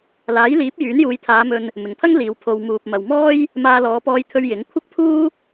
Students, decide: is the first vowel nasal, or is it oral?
oral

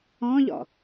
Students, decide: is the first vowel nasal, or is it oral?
nasal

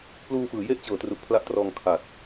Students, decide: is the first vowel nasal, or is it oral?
oral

